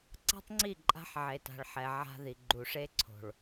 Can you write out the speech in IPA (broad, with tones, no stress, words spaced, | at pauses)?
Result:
ǀa̤˦tˤŋ͡ǀi˦˨ ǃʼa̤˦ħʕe˨ta̤˨ɭ ħɛ˨ ʕa̤˦ði˨ ɡ͡ǃu˨ʂe˦ǀʰo̤˨ɭ